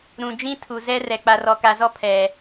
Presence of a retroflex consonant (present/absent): absent